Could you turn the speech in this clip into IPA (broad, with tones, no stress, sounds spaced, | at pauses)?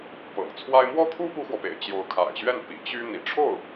p ɤ̰˨˩ ŋ t͡sʰ w a˥ ɪ̯ m w ɔ˥ t̪ʰ u˥ p u˥ x w ɔ˨ p ḛ˨˩ ɪ̯ t͡ɕ j o˧˥ ʊ̯ kʰ a̰˨˩ ɪ̯ ɕ ɥ ɛ˥˩ n p ḭ˨˩ t͡ɕ y˥ n̪ ḭ˨˩ ʈ͡ʂʰ o˥˩ ʊ̯